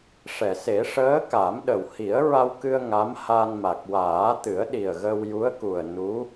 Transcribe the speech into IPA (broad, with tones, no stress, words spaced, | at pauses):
ʂɛ˨˩˨se˨˩˦ʂəː˧˥ ka˨˩˦mɗə˨˩w hi˨˩˦ə̯ɹa˧wkɨ˧ə̯ ŋa˧˥mha˧n ma˨˩k̚waː˨˩˦t̪ɨ˨˩˦ə̯ ɗi˨˩ə̯ ɣə˧wju˧˥ə̯ku˨˩ə̯ nu˧˥